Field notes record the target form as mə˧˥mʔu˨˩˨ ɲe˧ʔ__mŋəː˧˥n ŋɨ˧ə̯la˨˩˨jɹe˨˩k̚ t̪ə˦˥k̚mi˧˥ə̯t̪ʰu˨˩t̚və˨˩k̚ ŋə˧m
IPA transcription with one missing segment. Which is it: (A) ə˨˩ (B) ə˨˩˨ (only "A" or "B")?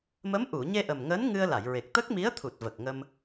A